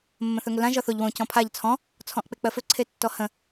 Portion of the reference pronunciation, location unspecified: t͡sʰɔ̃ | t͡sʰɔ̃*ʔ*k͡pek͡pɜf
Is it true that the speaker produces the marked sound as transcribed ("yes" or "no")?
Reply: yes